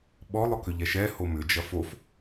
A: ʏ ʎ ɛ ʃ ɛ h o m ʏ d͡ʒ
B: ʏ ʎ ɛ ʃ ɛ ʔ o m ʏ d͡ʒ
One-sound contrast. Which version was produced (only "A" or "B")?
A